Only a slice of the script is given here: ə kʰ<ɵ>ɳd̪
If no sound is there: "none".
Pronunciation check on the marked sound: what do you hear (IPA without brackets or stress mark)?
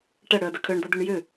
œ